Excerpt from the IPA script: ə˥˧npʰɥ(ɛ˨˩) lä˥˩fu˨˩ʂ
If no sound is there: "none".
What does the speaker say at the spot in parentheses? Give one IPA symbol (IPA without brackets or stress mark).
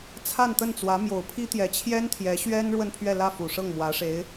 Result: ɛ˥˧